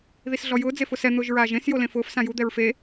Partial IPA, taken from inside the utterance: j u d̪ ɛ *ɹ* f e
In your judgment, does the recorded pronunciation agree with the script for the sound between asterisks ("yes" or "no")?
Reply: yes